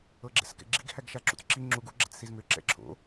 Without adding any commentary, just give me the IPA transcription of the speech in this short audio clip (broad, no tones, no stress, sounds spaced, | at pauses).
ɤ ɡ͡ǁ ɛ̰ s k ɛ̰ ɡ͡ǁ ḭ ɡ h æ ɡ ʃ a ǁ ṵ t͡s ǁ i ŋ͡ǁ u ɡ u ɡ͡ǁ ɛ̰ t͡s s i z m ʏ ǁ ɛ̰ ǁʰ o̰